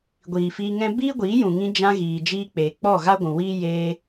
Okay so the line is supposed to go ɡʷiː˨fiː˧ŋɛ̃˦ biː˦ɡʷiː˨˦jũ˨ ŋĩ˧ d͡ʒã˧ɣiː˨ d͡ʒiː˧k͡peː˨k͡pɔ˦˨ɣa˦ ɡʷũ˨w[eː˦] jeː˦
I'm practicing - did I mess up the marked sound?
yes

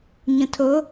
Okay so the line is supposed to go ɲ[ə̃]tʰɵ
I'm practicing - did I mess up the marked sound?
no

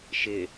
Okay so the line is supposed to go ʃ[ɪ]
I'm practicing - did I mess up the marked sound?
no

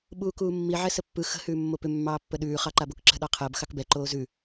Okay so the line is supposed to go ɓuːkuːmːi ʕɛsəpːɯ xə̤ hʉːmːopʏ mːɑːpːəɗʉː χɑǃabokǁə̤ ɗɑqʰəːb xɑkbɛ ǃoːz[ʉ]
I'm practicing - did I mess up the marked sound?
no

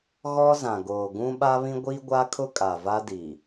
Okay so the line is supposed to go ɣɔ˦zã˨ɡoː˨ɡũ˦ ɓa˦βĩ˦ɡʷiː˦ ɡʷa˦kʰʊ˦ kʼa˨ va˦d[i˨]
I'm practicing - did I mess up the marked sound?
no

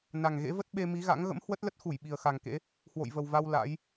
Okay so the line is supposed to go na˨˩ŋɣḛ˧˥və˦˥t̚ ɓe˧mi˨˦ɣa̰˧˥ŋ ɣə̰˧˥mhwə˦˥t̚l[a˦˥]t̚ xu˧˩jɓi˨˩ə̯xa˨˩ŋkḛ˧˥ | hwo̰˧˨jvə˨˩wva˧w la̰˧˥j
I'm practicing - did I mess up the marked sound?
yes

